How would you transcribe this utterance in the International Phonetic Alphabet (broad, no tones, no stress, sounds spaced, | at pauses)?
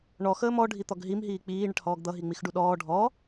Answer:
ɳ ɔ x əː m ɔ ɖʱ i t̪ ɔ ɡ ɦ i m ɦ iː k͡p iː ɳ ə ʈ h ɔː ɡ d̪ ʌ ɦ i ŋ͡m i x ɖ u ɗ ɔː ɖʱ ɔ